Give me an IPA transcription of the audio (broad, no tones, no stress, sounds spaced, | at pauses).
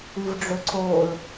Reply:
ɨ v ɖ͡ʐ ɵ ǀ o l